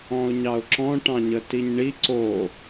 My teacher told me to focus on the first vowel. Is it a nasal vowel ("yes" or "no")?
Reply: yes